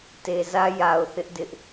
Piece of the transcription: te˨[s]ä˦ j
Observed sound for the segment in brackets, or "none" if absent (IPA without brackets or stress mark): z